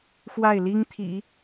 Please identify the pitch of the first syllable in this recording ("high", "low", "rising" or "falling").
falling